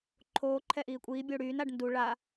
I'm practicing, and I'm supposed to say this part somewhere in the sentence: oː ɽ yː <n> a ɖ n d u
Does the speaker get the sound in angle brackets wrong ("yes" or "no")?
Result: no